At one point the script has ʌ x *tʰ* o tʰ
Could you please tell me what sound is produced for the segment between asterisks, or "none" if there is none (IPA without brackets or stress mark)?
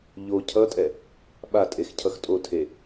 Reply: tʼ